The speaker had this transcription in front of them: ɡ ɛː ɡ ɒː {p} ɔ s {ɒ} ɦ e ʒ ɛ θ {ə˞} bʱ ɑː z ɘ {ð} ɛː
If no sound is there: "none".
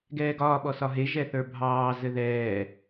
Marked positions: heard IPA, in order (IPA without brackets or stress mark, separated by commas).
ɓ, ɒ, ə˞, ð